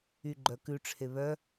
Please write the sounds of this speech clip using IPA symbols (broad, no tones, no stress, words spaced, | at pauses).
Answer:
yɡ͡ǃœkʉ ʈ͡ʂʰeβœ